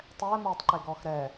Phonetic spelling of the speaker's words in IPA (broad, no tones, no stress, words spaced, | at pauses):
tˤɛːmoːtˤǃe ɡɔːxɾɛː